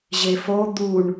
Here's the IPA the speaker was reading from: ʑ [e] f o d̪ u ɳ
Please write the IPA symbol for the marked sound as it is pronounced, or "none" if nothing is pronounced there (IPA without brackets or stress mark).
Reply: e